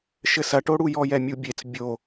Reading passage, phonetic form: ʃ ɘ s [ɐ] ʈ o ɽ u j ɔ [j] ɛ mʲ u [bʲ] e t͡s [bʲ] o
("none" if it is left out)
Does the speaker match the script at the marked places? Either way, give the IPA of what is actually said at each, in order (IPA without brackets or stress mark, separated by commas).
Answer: ɐ, j, bʲ, bʲ